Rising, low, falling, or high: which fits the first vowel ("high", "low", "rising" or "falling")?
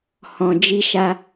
low